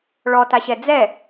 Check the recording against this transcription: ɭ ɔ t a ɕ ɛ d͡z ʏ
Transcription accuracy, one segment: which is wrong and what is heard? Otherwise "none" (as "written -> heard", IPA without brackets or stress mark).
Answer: ʏ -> ɛ